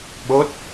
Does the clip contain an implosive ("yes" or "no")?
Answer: yes